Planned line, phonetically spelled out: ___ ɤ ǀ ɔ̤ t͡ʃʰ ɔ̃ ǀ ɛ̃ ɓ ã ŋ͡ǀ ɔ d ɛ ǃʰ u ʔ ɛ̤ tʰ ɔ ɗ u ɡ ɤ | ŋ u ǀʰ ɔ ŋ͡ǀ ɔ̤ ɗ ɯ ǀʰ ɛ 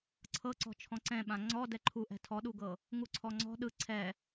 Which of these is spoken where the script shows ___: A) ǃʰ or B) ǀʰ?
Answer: B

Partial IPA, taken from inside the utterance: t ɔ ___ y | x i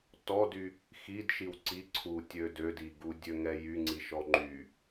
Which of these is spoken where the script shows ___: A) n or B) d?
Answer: B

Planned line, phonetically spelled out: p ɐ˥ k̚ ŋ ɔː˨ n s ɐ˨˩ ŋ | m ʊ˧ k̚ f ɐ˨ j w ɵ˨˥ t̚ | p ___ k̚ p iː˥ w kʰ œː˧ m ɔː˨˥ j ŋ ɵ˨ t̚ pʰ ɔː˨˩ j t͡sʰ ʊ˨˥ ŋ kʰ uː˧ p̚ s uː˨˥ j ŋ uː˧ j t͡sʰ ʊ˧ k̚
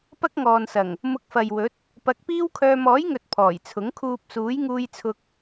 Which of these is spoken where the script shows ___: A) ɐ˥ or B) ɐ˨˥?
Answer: B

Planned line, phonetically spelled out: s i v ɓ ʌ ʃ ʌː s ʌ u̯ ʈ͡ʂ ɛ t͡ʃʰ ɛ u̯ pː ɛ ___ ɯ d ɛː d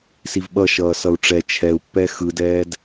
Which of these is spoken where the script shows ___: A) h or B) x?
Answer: B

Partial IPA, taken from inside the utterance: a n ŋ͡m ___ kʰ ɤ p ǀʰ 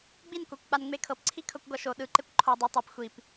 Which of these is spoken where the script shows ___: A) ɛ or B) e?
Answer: B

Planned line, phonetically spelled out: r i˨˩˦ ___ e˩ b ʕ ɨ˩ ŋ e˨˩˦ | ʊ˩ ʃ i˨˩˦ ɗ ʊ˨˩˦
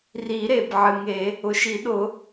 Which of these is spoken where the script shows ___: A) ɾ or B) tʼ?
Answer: A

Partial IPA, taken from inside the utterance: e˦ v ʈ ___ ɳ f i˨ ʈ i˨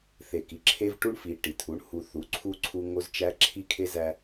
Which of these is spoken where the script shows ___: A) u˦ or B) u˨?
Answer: A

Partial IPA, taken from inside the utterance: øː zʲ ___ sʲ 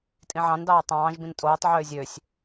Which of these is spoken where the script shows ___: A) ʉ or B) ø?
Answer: B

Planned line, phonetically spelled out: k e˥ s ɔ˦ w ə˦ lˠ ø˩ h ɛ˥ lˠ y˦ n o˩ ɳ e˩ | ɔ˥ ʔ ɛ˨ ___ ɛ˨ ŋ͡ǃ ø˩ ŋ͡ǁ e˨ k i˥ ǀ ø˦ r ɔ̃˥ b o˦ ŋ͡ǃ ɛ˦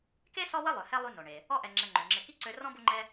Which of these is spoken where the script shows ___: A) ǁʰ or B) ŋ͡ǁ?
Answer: B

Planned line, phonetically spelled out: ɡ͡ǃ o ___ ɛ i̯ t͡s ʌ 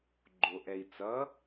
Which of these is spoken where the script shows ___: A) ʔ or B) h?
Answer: A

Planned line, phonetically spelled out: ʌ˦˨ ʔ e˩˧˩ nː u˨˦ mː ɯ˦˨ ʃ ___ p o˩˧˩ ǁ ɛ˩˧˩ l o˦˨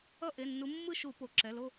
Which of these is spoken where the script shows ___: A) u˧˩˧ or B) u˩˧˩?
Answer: A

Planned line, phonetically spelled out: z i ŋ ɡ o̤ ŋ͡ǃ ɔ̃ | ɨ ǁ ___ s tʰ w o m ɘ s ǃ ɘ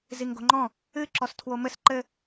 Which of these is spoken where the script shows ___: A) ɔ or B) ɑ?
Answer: A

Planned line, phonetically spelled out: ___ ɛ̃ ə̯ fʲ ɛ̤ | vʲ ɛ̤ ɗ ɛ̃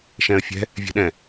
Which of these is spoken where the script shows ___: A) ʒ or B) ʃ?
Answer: B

